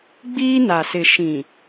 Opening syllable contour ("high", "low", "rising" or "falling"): high